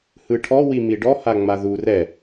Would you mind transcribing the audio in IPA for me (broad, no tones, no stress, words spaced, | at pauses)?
hɯʈʰɔ wimiɖɔ haŋ͡maður ɛ